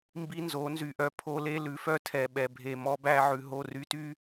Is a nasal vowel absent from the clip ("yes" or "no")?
yes